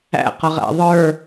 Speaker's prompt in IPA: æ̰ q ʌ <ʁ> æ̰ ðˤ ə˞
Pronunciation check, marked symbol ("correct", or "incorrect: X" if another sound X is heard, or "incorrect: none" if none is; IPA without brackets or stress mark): correct